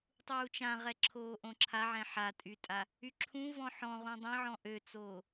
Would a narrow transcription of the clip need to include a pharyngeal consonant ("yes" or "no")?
yes